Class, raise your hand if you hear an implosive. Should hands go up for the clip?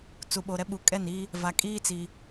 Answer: yes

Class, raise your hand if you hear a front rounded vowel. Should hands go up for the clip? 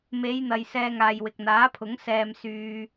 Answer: yes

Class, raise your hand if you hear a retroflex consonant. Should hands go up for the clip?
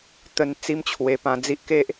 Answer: no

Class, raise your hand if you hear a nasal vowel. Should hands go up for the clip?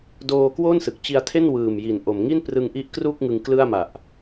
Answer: no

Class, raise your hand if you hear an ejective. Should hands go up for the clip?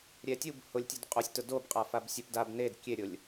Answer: yes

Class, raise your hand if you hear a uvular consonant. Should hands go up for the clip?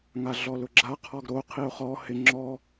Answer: yes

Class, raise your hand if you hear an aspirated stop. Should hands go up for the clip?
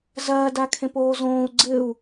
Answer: yes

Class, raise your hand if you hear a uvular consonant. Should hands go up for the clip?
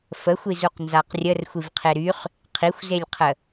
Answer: yes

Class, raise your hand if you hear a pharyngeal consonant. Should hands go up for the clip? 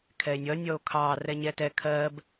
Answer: no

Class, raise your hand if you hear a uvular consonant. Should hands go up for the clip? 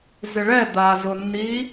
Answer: no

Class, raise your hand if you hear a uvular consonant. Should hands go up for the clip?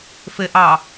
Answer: no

